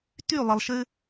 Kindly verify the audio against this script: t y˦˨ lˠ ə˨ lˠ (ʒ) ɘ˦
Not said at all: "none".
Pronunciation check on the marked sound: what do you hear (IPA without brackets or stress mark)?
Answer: ʃ